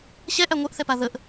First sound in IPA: ɕ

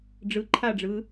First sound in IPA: ɖ͡ʐ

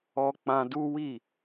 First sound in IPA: ɔ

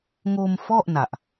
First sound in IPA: ŋ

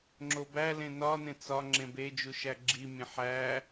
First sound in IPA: ŋ͡ǁ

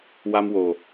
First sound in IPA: w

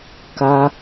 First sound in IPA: k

